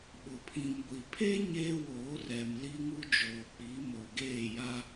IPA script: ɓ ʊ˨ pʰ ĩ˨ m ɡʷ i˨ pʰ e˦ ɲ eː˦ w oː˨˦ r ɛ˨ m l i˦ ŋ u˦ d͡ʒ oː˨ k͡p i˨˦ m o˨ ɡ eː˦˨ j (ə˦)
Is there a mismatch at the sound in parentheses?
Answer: yes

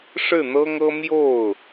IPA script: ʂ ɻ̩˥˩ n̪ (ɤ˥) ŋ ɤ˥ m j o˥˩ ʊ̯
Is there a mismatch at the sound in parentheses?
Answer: no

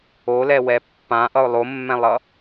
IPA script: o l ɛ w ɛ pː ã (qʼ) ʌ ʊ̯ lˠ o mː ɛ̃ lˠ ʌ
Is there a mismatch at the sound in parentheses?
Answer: yes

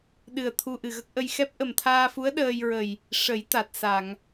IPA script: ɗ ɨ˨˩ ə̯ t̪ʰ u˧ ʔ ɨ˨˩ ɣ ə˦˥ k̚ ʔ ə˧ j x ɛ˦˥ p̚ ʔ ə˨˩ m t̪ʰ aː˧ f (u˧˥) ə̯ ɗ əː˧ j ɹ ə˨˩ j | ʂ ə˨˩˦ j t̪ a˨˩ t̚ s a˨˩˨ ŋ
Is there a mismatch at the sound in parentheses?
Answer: no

